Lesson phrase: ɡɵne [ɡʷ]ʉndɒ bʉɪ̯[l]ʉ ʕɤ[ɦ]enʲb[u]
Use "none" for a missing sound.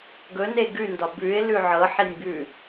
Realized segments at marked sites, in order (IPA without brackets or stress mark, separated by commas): ɡ, l, ħ, ʉ